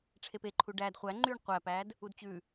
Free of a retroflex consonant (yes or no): no